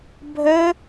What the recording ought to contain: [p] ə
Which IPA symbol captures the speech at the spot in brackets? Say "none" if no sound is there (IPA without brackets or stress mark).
bʱ